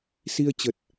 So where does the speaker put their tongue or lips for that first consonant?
tongue tip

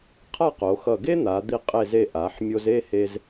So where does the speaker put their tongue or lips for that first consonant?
uvula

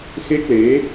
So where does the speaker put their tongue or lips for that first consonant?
velum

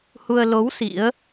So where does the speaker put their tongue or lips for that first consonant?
throat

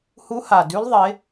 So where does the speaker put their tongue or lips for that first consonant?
throat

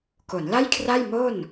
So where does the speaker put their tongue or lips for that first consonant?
velum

